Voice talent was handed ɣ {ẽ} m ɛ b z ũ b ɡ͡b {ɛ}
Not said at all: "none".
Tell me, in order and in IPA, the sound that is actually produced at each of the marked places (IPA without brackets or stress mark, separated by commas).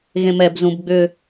ẽ, ʏ